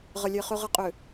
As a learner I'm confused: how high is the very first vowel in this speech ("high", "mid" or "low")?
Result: low